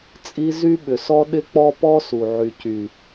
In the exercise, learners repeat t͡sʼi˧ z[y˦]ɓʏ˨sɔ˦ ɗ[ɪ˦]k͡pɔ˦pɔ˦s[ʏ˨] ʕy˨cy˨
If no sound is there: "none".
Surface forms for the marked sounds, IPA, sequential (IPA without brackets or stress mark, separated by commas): y˦, ɪ˦, u˨